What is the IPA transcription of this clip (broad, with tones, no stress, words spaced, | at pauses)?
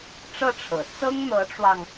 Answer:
ʈ͡ʂɤ˥˩ʈ͡ʂʰɤ̰˨˩ t͡sɤ˥ŋn̪ɤ˧˥ʈ͡ʂwɑ˧ŋ